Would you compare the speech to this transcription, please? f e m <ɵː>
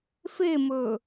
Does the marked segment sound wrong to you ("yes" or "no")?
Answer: no